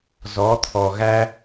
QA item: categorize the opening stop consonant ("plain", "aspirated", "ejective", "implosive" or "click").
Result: aspirated